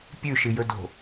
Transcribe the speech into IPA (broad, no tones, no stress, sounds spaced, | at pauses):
pʲ ʉ ʃ ɨ j ɵ d o̤